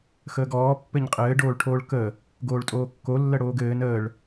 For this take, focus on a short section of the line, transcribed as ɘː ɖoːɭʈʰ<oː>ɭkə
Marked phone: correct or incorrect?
correct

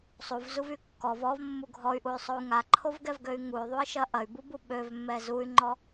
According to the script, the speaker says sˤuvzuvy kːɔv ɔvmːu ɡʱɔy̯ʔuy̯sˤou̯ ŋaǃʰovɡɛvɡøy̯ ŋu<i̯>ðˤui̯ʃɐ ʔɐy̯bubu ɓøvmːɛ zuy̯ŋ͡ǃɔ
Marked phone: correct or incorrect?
incorrect: y̯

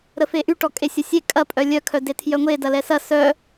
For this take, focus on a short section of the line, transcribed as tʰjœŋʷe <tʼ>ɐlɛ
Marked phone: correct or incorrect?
incorrect: d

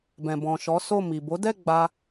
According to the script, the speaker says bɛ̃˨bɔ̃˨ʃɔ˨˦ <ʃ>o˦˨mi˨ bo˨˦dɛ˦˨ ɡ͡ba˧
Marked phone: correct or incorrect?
incorrect: s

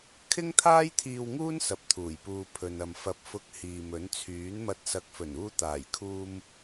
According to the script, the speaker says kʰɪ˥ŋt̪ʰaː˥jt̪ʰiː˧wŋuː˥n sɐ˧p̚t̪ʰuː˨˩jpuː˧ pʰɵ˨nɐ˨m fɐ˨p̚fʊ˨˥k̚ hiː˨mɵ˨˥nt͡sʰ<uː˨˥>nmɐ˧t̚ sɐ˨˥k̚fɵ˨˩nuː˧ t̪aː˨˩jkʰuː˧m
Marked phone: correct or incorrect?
incorrect: yː˨˥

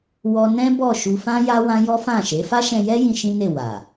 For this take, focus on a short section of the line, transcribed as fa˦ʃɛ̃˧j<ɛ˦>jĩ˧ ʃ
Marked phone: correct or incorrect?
correct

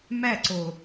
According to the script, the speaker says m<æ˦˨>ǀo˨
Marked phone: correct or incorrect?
correct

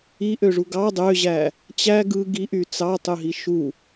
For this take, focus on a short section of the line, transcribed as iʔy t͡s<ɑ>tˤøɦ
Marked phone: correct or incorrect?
correct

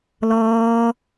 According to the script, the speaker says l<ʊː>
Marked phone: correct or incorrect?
incorrect: ɔː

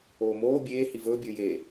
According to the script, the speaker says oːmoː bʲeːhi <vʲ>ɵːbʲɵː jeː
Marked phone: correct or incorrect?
incorrect: v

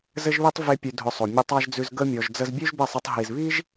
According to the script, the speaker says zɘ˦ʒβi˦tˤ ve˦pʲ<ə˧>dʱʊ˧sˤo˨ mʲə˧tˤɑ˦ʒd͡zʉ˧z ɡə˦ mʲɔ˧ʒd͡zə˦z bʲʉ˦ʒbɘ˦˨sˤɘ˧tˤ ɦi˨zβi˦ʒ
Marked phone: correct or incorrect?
incorrect: ʉ˧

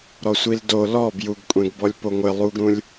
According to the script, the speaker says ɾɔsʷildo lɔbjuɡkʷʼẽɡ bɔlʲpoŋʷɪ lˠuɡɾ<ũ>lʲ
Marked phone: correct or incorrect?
correct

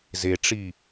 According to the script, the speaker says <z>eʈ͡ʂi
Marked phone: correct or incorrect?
correct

